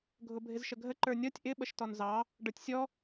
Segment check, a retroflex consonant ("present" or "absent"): present